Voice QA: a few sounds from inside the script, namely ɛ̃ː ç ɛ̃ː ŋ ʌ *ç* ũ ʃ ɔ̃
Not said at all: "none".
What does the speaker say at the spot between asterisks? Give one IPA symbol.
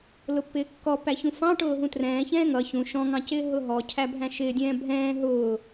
ç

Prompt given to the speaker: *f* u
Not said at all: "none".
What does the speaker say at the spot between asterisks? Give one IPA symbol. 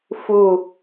f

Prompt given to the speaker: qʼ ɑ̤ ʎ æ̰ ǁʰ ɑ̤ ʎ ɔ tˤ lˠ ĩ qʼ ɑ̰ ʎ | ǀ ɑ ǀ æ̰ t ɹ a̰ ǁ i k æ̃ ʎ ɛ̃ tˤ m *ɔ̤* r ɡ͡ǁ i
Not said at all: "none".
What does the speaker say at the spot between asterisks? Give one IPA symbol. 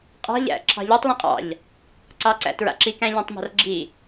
ɑ̤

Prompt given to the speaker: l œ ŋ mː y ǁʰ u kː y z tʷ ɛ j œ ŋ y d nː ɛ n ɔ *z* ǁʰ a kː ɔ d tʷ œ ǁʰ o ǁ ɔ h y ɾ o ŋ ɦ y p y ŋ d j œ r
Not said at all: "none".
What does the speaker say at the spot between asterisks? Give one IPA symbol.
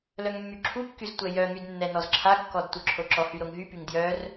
z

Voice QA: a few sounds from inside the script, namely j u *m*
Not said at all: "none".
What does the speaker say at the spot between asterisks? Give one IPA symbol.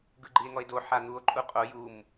m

